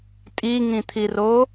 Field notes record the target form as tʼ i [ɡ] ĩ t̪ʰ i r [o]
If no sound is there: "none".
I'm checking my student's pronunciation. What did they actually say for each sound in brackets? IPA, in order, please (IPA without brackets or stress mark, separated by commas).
ŋ, o